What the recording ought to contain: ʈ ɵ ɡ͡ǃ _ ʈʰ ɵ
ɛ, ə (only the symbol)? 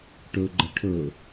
ə